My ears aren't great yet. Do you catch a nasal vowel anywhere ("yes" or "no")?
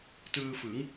no